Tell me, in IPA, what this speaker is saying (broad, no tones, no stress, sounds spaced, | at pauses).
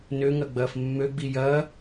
n ø ŋ ɐ ɡ͡b ɐː f mː ø ɡ͡b i j ɐː